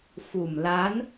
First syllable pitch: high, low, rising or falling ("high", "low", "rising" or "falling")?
low